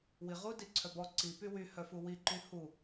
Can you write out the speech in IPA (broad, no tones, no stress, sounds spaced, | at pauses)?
w i ʁ u d i ǀʰ œ b ɔ ǀ i p y w y h œ f u w i ǃ y h u